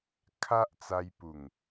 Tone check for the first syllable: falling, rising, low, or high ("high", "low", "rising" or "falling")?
high